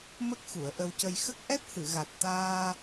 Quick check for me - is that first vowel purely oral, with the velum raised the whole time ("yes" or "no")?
yes